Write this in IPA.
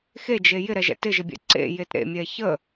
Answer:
xed͡ʒe jɪɾɛʒɛ̰ tɪʒɪbʲɛ̰ ǀḛjet ɾḛmʲɛ çə

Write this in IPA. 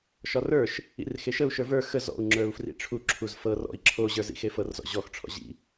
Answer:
ʃɒrə˞ʃ | ḭrxeʃəu̯ ʃə˞və˞ xə zɔ̰u̯ ŋ͡ǁə˞u̯frḭʈ͡ʂʰu ǁʰuzfɤ rɔ̰i̯ ǁʰo ʑə˞zḭxefɤr zɔ̰ʑɔx ʈ͡ʂʰɔ̰ʑḭ

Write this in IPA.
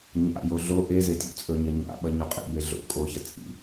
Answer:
ɲa̰jo ɮo ʔeze tʲo̰t͡sʼɵɲɐ ɲa̰ ɓɐɲuqʼḭbe ɮo̰ kʼoçɐ t͡sʼḭ

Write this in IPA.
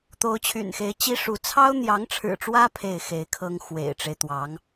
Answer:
t̪o˧˥ʊ̯t͡ɕʰy̰˨˩nxe˧˥ɪ̯ t͡ɕi˥ʂu˧˥ t͡sʰɑ˥ʊ̯n̪jɑ˧˥ŋʈ͡ʂʰɻ̩˨˩ʈ͡ʂwä˥ pʰe˥˩ɪ̯xe˧˥ɪ̯kʰɤ˥ŋ xwḛ˨˩ɪ̯ʈ͡ʂe˦ɪ̯t̪wɑ˧˥ŋ

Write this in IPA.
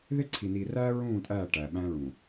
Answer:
ðe˦ǀʰi˨ niː˨ræː˦ ɹũː˦˨tʼæː˦˨ ʈæː˨ɓæ̃ː˦ɹũː˨

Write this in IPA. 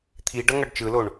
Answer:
t̪ʰi ɖʌŋʌɖt͡ʃɯloɳ

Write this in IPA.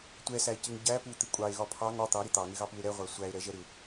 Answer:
tʷɛsæe̯cɪŋ ɟæ put̪ɪ kʷʼɑe̯ɣɒ pʰɑŋ ɒ t̪ɑɾɪ t̪ɑŋɪɣɑpue̯ ɾɛʁʷæ sʷæe̯ɾɛʒɛ ɾɪ

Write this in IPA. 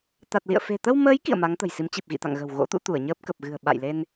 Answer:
t̪a˨˩t̚lḭ˧˨ə̯ fe̤˨˩ t̪ə˧wməː˨˦j kḭ˧˨ə̯ ma˨˦ŋt̪ə̤˨˩jsi˨˦m t͡ɕi˨˩p̚ɣḭ˧˨t̪a̰˧˨ŋɣə̤˨˩w ɣo̰˧˥t̪ṵ˧˥ t̪u˧˩ə̯ɲəː˦˥p̚ kə˨˩p̚ɣɨ̤˨˩ə̯ ɓa̰˧˨jle˧n

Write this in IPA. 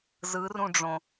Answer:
zɯrũɖ͡ʐõ

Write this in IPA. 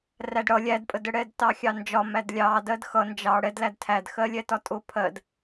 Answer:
rædɽʌ lʲædpʼədə ɽɛdtɑxʲɑnd͡ʒɒ mædlʲɑ dɜdxʌ nd͡ʒɑ ɽɛd lædtʰædxɜ lʲɛtɒtʼʊ pʰɜd

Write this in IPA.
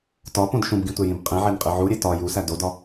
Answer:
tɒpõd ʃũbɡĩtʷejĩb qʼĩʕenqʼi ʕuɾʲe tɒ jusæ dodɒ

